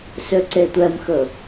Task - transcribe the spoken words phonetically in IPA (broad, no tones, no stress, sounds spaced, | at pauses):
s ø ǀ e tʷ ɛ m x ɵ